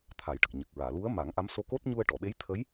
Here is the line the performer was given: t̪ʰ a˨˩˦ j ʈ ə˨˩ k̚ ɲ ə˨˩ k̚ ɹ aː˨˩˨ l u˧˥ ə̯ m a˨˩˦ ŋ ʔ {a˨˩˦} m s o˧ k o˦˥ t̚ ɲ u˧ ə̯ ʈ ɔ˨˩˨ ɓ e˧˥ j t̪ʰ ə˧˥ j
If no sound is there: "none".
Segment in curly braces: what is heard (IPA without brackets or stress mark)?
a˧˥